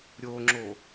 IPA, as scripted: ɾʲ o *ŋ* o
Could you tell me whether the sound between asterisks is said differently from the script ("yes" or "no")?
yes